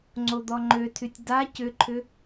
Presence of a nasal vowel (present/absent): absent